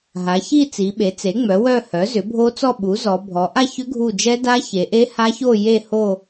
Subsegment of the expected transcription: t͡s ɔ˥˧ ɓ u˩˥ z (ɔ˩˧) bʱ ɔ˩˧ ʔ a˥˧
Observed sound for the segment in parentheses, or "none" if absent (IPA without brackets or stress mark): ɔ˩˧